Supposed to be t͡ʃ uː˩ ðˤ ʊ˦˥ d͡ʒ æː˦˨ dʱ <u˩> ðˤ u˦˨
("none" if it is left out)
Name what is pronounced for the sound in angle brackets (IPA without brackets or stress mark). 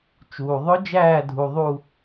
u˩